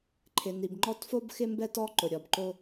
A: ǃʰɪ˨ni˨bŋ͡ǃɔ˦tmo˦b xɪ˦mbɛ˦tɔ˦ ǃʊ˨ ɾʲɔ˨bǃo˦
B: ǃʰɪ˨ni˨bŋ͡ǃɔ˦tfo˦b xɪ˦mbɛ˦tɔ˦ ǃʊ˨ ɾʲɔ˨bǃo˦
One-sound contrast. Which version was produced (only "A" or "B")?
B